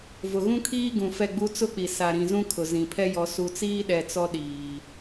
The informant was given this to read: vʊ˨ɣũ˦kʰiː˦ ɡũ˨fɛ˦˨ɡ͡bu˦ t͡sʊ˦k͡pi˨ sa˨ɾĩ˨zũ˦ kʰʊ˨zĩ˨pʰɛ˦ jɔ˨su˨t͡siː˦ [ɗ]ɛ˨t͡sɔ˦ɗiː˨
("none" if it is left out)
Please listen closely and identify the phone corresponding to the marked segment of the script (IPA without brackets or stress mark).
ɗ